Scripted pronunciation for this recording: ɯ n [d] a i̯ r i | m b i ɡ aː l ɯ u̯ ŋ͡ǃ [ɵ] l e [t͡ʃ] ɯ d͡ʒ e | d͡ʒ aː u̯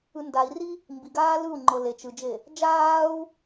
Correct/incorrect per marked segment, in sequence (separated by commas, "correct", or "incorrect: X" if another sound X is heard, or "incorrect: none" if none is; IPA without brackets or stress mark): correct, incorrect: ɤ, correct